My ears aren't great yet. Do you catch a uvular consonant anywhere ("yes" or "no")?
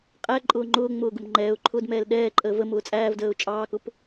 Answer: yes